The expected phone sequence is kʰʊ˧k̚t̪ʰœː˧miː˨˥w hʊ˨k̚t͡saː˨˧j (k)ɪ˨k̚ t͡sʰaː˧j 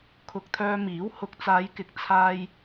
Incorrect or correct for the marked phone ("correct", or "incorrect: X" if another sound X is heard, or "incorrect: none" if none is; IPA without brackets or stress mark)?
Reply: correct